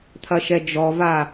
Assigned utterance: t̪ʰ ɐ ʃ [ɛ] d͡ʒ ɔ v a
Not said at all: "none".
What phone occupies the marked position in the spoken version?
ɛ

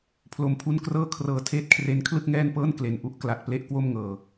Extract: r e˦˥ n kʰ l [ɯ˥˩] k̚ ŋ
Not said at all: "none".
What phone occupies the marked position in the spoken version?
ɯ˥˩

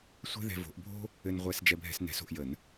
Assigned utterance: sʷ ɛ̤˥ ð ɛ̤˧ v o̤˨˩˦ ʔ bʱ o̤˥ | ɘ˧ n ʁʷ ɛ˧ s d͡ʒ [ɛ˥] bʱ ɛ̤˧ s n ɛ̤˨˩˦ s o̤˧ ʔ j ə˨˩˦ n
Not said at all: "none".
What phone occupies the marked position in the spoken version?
ɛ˧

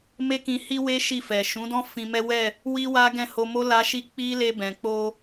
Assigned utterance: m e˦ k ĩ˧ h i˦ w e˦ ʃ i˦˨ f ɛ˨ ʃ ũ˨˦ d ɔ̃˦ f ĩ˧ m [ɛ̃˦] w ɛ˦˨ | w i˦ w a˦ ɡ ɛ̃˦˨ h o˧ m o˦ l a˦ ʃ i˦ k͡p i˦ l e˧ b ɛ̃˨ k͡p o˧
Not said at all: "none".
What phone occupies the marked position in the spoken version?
ɛ˦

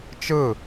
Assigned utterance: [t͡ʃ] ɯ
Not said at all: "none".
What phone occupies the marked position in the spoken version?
t͡ʃ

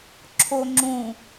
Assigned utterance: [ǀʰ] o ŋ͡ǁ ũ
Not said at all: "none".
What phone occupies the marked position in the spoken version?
ǁʰ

